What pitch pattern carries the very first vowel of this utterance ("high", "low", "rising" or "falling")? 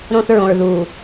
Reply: high